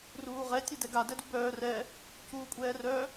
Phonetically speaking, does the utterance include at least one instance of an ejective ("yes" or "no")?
yes